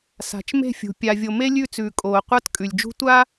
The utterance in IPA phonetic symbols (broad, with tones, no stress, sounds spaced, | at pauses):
s a̤˨ t͡ʃ m e̤˦˨ fʲ ṳ˨ pʲ a˨ vʲ o˨ m e˦ lʲ ʉ˦˨ t͡s ʉː˨ kʼ oː˨ qʷ a˦ t kʼ ʉ˨ lʲ d͡ʒ ṳ˦ tʷ a˦